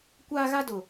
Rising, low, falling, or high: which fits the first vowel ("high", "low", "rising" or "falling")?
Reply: high